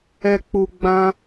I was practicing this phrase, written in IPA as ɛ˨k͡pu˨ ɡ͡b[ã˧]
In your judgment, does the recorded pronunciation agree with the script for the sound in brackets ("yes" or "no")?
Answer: yes